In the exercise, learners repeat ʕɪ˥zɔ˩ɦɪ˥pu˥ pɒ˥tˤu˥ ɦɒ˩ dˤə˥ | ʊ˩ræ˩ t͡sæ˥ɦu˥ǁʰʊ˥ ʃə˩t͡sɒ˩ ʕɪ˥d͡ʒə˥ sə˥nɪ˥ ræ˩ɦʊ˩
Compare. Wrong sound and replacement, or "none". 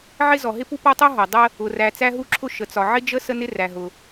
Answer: none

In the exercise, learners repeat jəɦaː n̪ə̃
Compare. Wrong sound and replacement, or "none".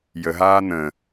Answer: none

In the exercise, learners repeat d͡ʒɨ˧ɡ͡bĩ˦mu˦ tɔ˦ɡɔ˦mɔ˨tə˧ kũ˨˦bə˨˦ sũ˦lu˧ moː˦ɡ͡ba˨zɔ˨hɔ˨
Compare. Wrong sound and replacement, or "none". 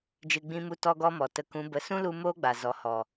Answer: none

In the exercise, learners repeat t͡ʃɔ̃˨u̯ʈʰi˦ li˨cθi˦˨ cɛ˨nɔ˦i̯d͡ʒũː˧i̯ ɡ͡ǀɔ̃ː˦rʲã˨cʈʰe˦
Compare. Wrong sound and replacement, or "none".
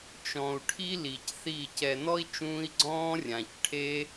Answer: d͡ʒ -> t͡ʃ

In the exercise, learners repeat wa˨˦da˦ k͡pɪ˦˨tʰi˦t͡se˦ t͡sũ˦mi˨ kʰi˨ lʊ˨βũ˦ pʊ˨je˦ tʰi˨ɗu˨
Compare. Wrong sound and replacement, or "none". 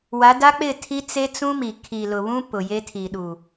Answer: none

